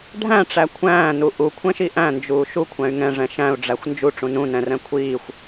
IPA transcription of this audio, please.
ɖʱ æ̃ ʈ͡ʂ æ kʷʰ æ̃ː n u ʔ u kʷʰ ɛ̃ ʃ i ʔ æ̃ n d͡ʒ uː ʃ u kʷʰ æ̃ y̯ ŋ ɛ̃ ʐ ɛ̃ ʃ æ̃ u̯ ɖ͡ʐ æ xʷ n d͡ʒ u ʈ͡ʂ ũ n ũ n ɛ̃ r ɛ̃ kʷʰ iː xʷ

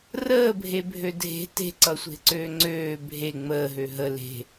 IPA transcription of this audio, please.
r əː bʱ e bʱ ø dʱ e̤ t e̤ ǀ ʌ sʷ e̤ ǀ øː ŋ͡ǀ øː bʱ e ŋ͡m əː ɦ ø ɦ ə l e̤

